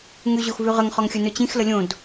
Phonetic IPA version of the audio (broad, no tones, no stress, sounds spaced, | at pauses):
ŋ ʉ ʑ o x v ʉ ʁ ə ŋ χ ɒ ŋ xʲ ɵ n ɵ t͡ɕ ĩ x l ə lʲ õ d